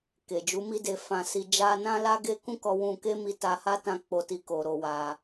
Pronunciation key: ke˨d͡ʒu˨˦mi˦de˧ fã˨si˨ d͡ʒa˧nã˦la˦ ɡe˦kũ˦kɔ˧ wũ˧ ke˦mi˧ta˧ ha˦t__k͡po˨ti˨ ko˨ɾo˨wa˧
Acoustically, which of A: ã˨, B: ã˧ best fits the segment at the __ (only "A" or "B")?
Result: B